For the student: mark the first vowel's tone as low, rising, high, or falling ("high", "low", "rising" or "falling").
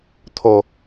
low